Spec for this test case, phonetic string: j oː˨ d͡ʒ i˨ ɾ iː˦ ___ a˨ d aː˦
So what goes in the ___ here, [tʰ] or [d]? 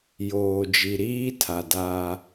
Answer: tʰ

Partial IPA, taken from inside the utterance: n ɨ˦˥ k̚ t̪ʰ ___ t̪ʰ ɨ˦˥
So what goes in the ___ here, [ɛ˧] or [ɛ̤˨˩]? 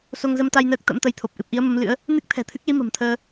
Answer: ɛ̤˨˩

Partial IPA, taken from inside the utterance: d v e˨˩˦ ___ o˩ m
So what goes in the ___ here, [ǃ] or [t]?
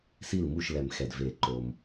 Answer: ǃ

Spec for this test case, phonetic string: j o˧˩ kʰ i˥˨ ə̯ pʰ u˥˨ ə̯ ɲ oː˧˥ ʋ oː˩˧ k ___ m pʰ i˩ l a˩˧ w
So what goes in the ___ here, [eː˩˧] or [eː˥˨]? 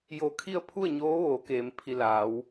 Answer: eː˩˧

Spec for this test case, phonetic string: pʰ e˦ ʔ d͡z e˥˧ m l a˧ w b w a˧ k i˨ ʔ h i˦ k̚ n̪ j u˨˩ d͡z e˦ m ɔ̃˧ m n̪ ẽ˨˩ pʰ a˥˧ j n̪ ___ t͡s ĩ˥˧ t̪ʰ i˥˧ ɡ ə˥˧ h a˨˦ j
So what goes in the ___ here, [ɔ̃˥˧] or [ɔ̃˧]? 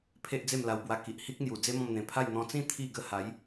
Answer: ɔ̃˧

